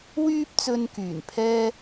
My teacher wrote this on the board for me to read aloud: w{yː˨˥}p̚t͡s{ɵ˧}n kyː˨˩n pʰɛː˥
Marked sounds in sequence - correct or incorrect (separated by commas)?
incorrect, correct